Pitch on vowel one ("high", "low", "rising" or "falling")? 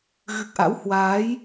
low